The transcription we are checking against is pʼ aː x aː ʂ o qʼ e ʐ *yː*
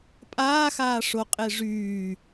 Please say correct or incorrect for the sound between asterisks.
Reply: correct